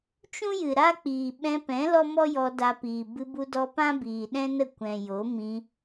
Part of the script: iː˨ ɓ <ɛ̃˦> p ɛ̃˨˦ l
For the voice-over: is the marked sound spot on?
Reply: no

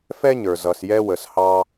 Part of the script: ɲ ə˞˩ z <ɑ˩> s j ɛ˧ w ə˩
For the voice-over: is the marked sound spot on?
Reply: no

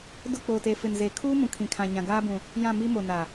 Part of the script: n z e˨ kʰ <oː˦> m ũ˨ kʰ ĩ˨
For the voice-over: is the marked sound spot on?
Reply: no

